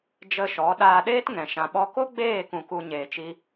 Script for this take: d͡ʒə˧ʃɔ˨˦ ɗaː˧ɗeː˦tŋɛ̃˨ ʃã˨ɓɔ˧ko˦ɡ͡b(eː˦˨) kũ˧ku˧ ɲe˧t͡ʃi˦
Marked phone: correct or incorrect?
correct